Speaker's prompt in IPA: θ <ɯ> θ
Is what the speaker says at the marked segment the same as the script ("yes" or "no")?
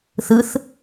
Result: yes